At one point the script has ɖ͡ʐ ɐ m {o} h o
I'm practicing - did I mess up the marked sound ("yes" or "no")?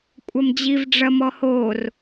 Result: yes